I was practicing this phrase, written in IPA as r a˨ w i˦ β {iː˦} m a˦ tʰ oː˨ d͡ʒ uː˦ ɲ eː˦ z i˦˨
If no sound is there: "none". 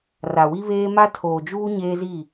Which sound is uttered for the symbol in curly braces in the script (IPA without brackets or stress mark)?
eː˦